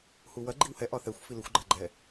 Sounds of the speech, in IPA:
h u w ɐ ɡ͡ǃ i w h ɛ ʔ ɒ θ ɛ xʷ f i l ʏ xʷ ɡ͡ǃ a ɡ͡ǃ ɛ

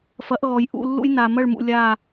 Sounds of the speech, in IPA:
f ɐ˨˦ ʔ ɣ ɔ˨ j ʔ ṵ˦˨ lː ṵ˦ j n a˨ m ɐ˦˨ ɭ m ṵ˨ lʲ a˦˨

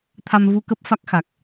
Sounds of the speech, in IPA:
t̪ʰ a˧ m v u˧ k ə˦˥ p̚ f a˦˥ k̚ x a˨˩ k̚

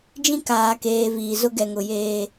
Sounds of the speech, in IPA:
d͡ʒ ĩ˦ k aː˨ k eː˨ v iː˨ z ʊ˦ ɡ ɛ˨ ŋ ʊ˨ j eː˦

